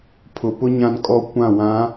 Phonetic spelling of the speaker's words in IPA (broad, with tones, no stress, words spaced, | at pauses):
pʰʊ˨pʊ˦ ɲã˦nkʼɔ˦ kʷã˦˨wã˨˦